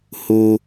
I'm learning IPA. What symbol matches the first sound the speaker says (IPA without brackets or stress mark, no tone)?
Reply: h